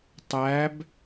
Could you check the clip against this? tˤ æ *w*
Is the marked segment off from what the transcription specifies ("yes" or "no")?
yes